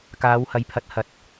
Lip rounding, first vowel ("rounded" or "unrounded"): unrounded